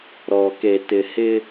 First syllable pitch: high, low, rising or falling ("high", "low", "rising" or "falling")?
low